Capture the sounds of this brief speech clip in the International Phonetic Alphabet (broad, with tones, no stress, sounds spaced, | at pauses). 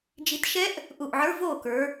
d͡ʒ i˨˦ t ʃ ɛ˦˥ ʔ | ʔ u˨˩ ʔ ʕ ə˞˧˥˧ v oː˥˩ k ə˞˨˦